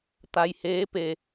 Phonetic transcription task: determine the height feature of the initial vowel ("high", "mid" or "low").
low